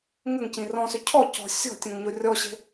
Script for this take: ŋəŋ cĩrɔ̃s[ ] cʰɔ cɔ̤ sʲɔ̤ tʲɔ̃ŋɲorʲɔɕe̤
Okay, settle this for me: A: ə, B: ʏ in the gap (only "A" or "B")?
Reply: B